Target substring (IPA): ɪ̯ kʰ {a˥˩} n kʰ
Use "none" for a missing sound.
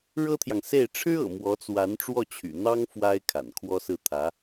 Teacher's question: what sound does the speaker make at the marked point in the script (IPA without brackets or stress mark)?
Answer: a̰˨˩